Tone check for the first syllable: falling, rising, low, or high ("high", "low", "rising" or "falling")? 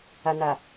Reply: low